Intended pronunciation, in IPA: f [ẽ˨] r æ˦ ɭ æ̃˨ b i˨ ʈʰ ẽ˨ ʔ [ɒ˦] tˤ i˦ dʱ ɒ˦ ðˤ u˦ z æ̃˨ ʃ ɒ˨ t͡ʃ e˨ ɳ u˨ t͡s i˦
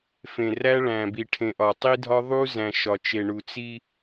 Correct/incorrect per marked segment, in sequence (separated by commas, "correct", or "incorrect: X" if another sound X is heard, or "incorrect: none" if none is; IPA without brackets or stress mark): correct, incorrect: ɒ˨